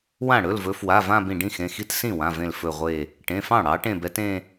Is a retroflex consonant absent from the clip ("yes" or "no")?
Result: no